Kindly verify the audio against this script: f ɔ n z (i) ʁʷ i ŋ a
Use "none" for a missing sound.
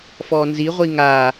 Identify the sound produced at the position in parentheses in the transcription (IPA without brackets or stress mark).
i